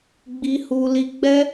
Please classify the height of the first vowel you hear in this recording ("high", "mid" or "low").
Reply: high